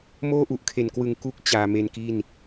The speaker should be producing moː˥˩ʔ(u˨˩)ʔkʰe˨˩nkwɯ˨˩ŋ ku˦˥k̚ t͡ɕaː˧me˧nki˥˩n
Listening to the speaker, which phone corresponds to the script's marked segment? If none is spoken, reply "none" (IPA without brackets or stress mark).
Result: u˨˩